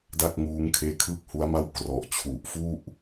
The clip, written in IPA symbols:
d a˥˩ k̚ ŋ uː˦˥ ŋ kʰ eː˦˥ kʰ ɯː˥˩ k̚ h u˦˥ a̯ m a˥˩ w k r ɔ˨˩ ʔ t͡ɕʰ u˨˩ ʔ f u˥˩ ʔ

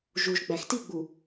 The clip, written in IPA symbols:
ʒ u ʒ ɡ͡b æ x t i ɡ͡b u

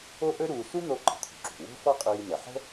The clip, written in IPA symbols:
o˥ ʔ ɵ˥ ɾ uː˧ s u˥ n̪ o˧ ǃ ə̤˩ t̪ʰ ṳ˩ ǁ ṳ˩ w o̤˥ f ɔ˥ qʼ iː˧ n ə˩ ħ ə̤˥

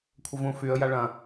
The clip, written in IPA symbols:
kʷʰ ə v ũ f y ə̯ j a ɭ ɐ̃

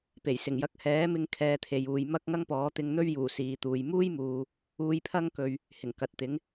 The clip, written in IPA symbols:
p e˨˩ j s ɪ˨˩ ŋ j ɐ˧ k̚ h ɛː˨˥ m ɪ˧ ŋ kʰ ɛː˨ t̪ʰ e˨ j uː˨ j m ɐ˥ k̚ ŋ ɐ˥ ŋ p ɔː˨˥ t̪ ɪ˧ ŋ n̪ ɵ˥ ɥ j uː˨˩ s iː˨ t̪ uː˨ j m uː˥ j m uː˨ | uː˧ j pʰ ɐ˥ ŋ k ɵ˨ ɥ | h ɪ˨˩ ŋ k ɐ˨ t̚ t̪ ɪ˨˥ ŋ

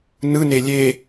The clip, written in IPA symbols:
n ɯ n e lʲ e

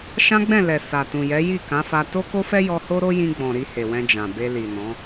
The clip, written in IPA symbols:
ʃ ã˦ ɡ͡b ɛ̃˦˨ l ɛ˨ s a˨ t ũ˨ j ɛ˨˦ j i˦˨ k ã˨˦ f a˧ t o˦ k o˦ f ɛ˦ j ɔ˧ h o˦ ɾ o˦ j ĩ˧ ɡ͡b ɔ̃˨ ɾ i˧ h e˨ w ɛ̃˧ d͡ʒ ã˨ b e˧ l i˨ n ɔ̃˨˦

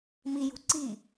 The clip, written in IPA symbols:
m i j ṳ ǀ i

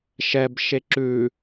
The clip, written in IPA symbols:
ʃ ɛ b ʃ e ǁ ʉ

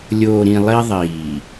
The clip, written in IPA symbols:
lʲ oː˨ ɾ ĩ˨ lˠ i˦ ðˤ iː˨

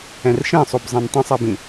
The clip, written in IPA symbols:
ɛ̃ r ʃ ẽ sˤ o b zˤ ɛ̃ n tˤ ĩ sˤ ɜ b ĩ

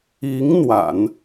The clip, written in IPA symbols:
i˧˥ ŋ n̪ w a̰˨˩˦ n

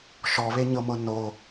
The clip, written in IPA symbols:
ʃ ɔ β e ɲ ɤ m ɤ n o

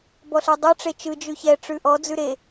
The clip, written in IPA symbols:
b ɔ ɬ ɛ dˤ ɯ ʈ͡ʂ e t͡ʃ ɯ d͡ʒ ʉ ç ɛ ʈ͡ʂ ʉ ʔ ɔ d͡z ʉ ɾ e

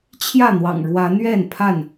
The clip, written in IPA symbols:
t͡ɕʰ j ä˥˨ n̪ w ɑ̰˨˩ ŋ ɻ w ä˨˦ n̪ ɥ ɛ˥˨ n pʰ a˥˨ n

